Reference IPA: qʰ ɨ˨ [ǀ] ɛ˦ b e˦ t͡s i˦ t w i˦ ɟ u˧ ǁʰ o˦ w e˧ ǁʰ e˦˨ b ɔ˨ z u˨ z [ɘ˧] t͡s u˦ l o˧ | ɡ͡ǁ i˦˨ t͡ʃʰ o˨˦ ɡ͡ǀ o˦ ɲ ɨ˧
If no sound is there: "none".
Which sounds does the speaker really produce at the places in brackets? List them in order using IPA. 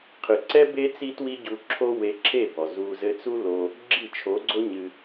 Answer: ǀ, ɘ˧

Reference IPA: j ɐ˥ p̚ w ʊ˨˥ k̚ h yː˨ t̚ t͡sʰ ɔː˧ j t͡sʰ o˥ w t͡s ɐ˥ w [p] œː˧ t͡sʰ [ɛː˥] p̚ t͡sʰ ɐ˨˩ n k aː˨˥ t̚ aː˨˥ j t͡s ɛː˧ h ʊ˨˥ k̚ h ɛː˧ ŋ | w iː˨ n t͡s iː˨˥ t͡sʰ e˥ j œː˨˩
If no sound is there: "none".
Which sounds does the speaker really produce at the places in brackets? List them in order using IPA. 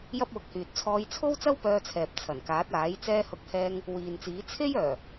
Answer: p, ɛː˨

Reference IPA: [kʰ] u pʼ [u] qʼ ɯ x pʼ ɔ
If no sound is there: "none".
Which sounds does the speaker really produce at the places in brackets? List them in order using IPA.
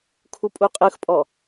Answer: kʰ, u

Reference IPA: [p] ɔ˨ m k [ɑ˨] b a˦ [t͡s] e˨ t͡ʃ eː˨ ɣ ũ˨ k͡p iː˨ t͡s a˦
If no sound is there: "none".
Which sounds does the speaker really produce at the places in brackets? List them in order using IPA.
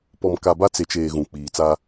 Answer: p, a˨, t͡s

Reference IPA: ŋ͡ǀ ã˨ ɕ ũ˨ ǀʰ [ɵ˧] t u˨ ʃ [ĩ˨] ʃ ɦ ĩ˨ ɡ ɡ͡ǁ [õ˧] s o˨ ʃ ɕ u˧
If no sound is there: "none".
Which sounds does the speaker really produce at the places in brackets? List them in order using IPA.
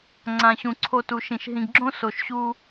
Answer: o˧, ĩ˨, õ˦

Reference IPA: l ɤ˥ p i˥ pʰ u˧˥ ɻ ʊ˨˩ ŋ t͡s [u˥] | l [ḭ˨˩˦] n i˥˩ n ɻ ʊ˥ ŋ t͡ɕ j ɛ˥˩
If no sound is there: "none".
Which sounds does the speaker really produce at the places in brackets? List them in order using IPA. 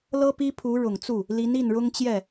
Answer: u˥˩, i˧˥

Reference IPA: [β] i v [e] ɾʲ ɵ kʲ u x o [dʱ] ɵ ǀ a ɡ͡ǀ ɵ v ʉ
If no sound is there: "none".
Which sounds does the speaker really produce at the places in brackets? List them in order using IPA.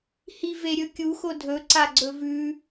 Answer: h, e, dʱ

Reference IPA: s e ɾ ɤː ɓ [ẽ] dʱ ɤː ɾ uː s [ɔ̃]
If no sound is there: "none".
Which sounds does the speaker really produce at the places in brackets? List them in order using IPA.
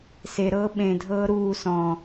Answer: ẽ, ɔ̃

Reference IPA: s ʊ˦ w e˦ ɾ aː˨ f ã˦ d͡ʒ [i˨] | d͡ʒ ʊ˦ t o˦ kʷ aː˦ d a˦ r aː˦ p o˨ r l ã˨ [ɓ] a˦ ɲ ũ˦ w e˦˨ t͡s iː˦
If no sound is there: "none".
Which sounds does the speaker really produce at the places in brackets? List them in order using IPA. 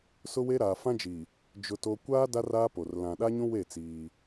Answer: i˨, ɗ

